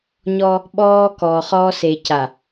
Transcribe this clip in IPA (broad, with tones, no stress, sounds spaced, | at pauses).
ɲ ɔ˦ | ɓ ɔː˦ k ɔː˨ χ ɔ˦ s e˨ c a˨